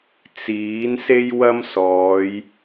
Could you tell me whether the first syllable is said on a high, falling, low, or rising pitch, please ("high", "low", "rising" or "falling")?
rising